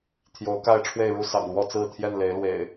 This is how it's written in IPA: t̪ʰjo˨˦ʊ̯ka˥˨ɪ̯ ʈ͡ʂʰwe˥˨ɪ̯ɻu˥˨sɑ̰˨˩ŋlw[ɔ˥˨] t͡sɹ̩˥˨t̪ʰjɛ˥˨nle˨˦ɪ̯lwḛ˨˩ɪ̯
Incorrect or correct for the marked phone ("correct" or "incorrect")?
correct